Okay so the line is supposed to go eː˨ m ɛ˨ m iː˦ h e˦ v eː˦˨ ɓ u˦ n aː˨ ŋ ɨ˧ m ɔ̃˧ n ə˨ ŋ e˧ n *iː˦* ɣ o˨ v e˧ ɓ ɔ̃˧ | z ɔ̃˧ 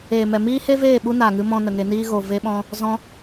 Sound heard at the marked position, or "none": iː˦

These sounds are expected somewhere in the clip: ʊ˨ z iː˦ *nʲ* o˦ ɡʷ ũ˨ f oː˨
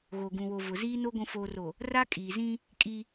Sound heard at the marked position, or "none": n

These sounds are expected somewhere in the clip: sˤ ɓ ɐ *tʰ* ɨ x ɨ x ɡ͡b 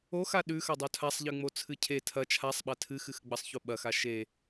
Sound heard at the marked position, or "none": tʰ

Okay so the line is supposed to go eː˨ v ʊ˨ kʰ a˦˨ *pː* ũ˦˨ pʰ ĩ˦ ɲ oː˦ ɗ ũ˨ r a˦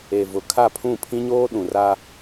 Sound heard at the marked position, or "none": pʰ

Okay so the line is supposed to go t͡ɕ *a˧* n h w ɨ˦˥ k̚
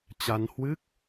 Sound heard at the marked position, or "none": a˧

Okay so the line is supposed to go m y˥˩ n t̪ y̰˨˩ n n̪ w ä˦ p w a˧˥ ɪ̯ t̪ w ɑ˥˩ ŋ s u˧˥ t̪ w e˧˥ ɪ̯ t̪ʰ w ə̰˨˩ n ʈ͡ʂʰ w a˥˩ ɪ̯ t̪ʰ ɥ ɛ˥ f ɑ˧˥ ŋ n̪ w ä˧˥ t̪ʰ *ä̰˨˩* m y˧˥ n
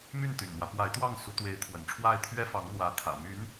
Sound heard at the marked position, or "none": ä̰˨˩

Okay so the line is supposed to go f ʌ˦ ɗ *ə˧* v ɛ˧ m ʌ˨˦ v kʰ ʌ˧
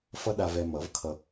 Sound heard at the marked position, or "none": a˧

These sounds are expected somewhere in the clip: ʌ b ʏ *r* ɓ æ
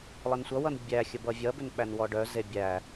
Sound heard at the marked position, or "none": n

